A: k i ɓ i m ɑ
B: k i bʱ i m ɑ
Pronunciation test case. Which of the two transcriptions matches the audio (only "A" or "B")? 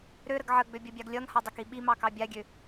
A